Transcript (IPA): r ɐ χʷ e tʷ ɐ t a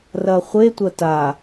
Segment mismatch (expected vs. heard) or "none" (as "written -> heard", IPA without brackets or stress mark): none